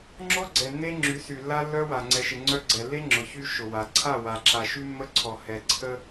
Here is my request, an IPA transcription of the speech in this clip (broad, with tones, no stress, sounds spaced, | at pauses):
ŋ͡ǁ ɔ˦ ɡ͡ǀ ɛ˨ nː e˦ ŋ͡ǁ y˨˦ s y˨ lː a˦ lː œ˦ w a˨ ŋ͡ǀ ɛ˨ ʃ ɪ˨ ŋ͡ǀ œ˦ ɡ͡ǀ ɛ˨ lː e˦ ŋ͡ǁ ʊ˨ ç y˦ ʃ ʊ˨ w a˨ ǀʰ a˦˨ w a˨ ǁ a˨ ʃ y˦ mː ə˦ ǀʰ ɔ˨ h ɛ˨ ǀʰ ə˦